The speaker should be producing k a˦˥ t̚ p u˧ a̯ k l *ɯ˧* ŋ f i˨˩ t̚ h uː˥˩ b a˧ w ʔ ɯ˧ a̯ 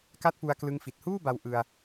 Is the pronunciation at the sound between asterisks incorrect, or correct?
correct